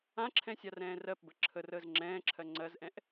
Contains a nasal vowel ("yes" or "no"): yes